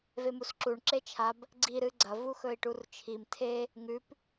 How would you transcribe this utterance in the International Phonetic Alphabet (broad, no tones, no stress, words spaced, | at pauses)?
vemusǁuɳ ǁet͡ʃʰab | ɡ͡ǀi ɾɨɡ͡ǀɐ vuxɵi̯ʈurt͡ʃʰim tʰe | ŋʉp